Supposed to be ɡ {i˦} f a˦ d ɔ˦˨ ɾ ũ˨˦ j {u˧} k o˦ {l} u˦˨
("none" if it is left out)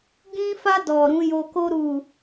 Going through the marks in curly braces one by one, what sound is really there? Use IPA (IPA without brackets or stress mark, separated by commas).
ĩ˦, o˧, ɾ